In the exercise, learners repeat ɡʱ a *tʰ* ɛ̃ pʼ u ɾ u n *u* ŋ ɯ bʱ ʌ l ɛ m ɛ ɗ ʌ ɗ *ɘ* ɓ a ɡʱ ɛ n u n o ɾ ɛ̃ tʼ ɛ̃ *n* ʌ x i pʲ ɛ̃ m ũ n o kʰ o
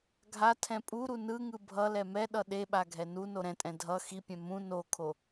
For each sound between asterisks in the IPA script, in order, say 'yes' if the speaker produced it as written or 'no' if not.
yes, no, no, no

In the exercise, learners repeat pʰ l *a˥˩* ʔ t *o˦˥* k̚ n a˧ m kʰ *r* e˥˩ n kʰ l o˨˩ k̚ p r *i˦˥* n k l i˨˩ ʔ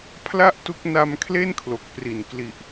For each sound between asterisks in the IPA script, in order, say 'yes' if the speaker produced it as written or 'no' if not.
yes, no, no, no

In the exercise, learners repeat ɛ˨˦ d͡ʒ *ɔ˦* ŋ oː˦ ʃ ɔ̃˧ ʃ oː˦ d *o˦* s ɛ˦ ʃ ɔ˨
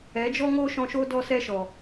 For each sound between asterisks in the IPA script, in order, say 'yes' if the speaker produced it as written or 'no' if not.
yes, no

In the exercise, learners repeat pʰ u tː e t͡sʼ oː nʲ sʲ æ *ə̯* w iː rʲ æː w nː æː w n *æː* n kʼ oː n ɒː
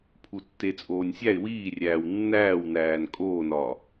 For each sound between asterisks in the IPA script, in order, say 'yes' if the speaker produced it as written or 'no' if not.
no, yes

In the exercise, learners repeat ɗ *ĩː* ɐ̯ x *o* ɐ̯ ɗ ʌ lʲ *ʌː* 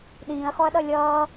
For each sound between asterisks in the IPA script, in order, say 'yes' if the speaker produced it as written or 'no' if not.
yes, no, yes

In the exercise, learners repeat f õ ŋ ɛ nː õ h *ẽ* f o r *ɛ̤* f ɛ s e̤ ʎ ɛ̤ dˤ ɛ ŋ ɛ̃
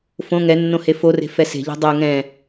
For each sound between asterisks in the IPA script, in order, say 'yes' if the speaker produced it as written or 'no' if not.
no, no

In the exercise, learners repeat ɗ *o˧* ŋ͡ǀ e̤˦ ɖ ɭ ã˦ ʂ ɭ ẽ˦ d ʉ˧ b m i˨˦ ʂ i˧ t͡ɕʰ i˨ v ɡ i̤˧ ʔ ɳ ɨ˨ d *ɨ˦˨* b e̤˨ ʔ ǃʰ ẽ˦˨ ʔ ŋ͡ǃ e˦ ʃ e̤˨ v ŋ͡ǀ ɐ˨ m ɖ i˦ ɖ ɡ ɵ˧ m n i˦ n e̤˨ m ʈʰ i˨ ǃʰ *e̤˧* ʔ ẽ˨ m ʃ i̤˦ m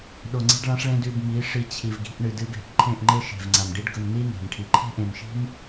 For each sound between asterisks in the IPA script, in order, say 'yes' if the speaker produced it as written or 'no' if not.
yes, no, no

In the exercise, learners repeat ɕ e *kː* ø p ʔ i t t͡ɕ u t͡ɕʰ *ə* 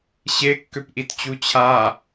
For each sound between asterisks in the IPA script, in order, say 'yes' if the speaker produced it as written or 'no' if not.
yes, no

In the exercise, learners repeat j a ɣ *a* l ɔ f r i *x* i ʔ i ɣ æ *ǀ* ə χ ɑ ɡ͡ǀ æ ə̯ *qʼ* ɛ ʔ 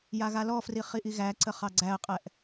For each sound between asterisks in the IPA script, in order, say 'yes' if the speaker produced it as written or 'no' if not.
yes, no, yes, yes

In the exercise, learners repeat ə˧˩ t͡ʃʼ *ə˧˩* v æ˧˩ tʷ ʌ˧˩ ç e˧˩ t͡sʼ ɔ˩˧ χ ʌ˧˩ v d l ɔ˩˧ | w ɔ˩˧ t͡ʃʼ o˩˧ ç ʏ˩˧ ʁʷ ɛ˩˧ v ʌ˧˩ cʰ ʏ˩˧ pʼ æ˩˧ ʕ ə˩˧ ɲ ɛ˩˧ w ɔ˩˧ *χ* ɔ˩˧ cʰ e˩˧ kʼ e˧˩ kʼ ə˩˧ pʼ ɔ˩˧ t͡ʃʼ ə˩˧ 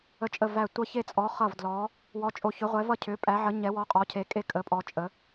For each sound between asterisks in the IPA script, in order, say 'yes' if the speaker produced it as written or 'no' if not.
yes, no

